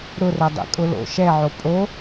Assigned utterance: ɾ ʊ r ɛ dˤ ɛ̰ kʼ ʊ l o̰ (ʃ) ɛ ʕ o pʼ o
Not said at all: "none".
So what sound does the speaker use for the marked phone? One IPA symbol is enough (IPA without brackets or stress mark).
ʃ